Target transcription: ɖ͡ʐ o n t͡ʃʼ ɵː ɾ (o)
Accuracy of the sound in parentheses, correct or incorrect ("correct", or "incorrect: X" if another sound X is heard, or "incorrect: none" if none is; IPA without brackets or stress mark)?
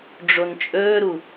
incorrect: u